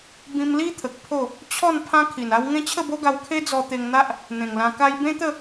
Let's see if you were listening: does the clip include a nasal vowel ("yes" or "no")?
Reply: yes